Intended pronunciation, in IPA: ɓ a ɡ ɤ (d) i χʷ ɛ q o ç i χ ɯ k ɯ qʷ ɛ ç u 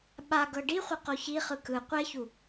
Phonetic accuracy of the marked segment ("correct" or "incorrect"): incorrect